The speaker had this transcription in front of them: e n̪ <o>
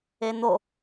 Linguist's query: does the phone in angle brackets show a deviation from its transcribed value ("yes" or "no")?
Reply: no